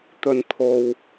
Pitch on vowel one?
low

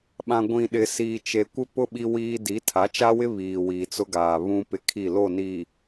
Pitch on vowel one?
low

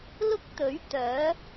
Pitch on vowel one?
high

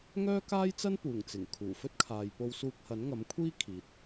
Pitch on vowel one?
high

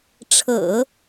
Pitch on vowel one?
low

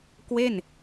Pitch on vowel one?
falling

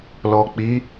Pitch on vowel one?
low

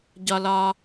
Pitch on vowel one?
low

